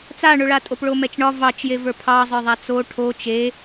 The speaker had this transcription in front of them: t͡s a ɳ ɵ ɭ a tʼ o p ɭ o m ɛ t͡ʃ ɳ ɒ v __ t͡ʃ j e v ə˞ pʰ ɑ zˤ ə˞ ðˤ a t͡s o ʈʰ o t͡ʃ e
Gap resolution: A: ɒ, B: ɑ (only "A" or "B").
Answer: B